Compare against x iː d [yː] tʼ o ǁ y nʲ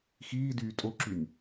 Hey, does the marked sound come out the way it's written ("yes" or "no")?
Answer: yes